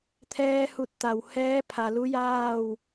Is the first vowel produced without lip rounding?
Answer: yes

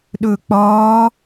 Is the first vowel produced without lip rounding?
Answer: no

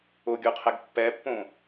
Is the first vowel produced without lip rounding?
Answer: no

